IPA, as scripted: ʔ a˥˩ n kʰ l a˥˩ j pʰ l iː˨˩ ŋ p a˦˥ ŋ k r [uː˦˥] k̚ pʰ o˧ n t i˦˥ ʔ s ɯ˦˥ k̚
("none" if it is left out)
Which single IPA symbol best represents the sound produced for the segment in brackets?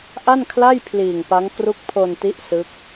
u˦˥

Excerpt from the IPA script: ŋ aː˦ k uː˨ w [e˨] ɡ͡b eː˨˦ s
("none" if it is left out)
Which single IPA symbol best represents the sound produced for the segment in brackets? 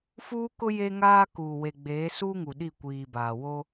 e˨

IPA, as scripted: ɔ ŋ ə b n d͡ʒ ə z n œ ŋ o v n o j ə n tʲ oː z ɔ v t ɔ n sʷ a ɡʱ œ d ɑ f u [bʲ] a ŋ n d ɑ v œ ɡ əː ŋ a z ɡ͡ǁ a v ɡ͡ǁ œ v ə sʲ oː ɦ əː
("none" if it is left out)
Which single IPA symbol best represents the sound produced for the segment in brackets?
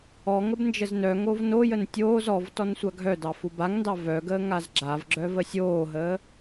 b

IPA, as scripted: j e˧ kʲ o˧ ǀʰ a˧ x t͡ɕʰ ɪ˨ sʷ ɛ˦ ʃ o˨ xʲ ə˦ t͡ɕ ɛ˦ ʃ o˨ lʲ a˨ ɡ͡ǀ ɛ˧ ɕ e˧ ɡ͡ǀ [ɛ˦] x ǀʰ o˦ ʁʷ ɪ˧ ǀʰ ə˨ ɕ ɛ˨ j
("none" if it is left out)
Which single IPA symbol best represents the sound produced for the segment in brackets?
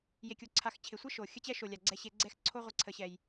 ɛ˦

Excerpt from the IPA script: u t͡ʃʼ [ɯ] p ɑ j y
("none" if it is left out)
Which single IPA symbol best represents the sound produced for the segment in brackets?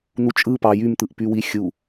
ɯ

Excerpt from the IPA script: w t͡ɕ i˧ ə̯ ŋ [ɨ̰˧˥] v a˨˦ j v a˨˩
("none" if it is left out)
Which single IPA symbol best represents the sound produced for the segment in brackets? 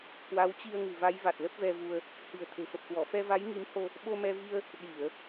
ɨ̤˨˩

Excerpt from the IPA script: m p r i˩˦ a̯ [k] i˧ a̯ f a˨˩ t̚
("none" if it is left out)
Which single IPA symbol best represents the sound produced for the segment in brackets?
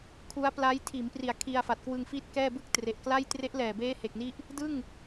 kʰ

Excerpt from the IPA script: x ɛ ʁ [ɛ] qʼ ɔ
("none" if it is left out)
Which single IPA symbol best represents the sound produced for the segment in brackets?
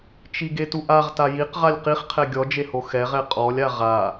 ɛ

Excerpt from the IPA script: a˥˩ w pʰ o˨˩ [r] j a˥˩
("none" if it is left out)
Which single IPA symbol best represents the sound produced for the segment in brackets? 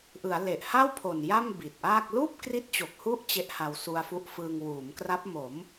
n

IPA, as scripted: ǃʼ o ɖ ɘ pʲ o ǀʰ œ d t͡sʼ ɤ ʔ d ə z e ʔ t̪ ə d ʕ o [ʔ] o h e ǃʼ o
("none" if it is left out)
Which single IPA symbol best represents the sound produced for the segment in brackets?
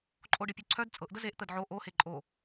ʔ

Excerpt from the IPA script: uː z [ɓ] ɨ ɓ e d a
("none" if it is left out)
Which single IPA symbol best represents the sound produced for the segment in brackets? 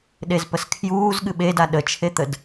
ɠ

